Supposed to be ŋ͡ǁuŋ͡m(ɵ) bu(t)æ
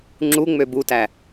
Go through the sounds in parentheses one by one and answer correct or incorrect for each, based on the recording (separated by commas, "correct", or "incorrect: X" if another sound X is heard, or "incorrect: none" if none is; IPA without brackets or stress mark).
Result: incorrect: ø, correct